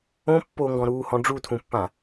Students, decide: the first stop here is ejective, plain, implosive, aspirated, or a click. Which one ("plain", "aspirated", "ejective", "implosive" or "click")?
plain